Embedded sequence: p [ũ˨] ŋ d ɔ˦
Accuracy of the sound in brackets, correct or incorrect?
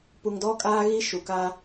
incorrect: u˨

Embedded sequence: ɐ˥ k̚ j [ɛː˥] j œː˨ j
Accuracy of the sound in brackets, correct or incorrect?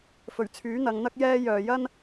correct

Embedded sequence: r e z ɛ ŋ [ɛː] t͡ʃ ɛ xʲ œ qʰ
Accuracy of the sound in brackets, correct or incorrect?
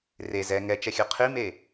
incorrect: ɛ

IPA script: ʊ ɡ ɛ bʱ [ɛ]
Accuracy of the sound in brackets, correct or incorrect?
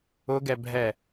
correct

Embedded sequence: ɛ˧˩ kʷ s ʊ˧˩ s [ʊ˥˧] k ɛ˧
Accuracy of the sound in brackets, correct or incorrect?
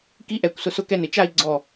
incorrect: ʊ˧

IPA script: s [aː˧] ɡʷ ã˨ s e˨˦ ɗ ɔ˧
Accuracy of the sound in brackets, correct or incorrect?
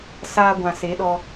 correct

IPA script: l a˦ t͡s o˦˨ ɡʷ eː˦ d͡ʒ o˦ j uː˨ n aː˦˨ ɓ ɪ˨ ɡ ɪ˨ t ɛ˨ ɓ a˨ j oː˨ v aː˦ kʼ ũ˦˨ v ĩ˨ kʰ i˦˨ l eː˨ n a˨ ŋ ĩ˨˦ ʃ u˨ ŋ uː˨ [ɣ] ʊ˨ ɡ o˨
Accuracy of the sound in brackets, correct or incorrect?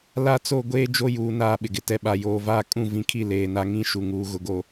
correct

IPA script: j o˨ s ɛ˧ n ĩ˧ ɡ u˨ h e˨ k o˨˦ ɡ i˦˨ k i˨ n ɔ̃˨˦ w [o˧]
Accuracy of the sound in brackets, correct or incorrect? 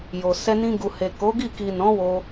correct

